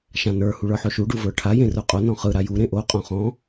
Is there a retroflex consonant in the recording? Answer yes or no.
yes